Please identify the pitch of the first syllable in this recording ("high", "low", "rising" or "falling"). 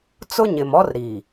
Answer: high